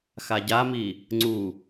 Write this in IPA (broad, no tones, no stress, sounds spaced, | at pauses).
x a ɟ a m i | ŋ͡ǀ u